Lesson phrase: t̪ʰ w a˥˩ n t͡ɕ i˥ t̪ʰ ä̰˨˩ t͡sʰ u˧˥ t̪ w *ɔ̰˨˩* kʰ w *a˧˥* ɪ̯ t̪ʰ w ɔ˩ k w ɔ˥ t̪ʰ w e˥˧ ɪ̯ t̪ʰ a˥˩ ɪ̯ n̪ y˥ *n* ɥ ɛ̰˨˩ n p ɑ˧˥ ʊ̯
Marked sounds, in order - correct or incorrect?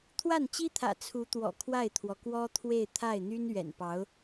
correct, incorrect: a˥˩, correct

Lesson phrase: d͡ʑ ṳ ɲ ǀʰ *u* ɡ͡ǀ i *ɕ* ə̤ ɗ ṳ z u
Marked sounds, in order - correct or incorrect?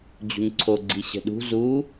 incorrect: o, correct

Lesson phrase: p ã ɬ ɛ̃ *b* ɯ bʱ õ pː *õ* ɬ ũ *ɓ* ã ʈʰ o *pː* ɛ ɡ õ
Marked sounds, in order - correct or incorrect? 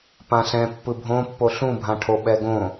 incorrect: pː, incorrect: o, incorrect: bʱ, incorrect: ɓ

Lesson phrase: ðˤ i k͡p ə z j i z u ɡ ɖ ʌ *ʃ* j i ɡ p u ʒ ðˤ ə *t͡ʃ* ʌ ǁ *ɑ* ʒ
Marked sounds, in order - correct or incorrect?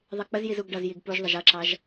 incorrect: z, incorrect: ʒ, correct

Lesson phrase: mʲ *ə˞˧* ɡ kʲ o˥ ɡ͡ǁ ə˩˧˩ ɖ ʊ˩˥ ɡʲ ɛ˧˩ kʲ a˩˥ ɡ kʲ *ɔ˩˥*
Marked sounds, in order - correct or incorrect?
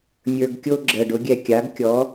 correct, correct

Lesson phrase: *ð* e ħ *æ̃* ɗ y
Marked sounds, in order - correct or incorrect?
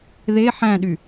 correct, correct

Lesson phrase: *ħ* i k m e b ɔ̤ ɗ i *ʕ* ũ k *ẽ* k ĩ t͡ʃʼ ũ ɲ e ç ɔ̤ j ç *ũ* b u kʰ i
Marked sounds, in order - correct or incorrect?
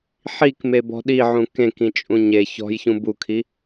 correct, correct, correct, correct

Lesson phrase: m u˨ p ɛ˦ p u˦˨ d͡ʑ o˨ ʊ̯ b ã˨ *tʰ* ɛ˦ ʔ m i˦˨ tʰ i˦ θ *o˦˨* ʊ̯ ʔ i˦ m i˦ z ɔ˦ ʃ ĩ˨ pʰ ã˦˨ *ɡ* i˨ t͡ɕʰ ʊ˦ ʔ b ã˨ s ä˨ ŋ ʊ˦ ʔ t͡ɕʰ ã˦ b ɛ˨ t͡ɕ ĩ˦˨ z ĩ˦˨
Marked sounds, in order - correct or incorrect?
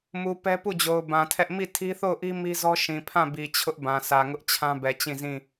correct, correct, incorrect: b

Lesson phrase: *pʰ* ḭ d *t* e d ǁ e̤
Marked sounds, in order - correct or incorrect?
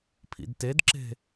correct, correct

